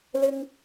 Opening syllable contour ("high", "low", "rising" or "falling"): high